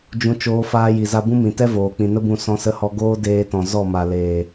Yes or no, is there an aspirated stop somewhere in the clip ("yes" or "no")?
no